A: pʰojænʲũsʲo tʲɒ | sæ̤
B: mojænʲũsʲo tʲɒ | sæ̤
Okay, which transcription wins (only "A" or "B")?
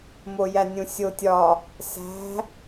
B